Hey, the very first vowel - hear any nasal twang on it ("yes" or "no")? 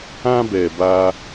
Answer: yes